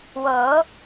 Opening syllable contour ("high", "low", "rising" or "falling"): rising